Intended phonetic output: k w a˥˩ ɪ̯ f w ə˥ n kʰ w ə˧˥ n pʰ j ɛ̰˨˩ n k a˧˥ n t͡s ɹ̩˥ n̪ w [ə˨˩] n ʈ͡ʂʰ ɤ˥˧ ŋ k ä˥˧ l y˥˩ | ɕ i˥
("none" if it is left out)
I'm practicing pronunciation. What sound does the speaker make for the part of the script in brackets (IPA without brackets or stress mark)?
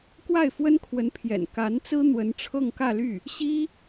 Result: ə˧˥